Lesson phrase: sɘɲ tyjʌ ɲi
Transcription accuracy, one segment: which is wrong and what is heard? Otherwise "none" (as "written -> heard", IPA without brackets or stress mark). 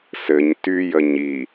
ʌ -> ə